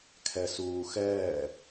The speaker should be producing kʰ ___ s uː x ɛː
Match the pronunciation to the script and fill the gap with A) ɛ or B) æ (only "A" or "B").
A